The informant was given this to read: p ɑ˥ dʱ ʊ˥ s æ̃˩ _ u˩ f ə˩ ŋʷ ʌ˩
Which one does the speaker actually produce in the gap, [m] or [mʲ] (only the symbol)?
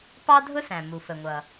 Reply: m